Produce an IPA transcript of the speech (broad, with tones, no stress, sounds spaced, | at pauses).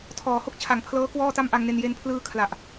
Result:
tʰ ɔː˩˦ h o˥˩ k̚ t͡ɕʰ a˩˦ ŋ pʰ l ɤː˦˥ k w ɔː˥˩ t a˥˩ m ʔ a˧ ŋ n e˧ n j e˧ n pʰ l ɯː˧ kʰ l a˨˩ ʔ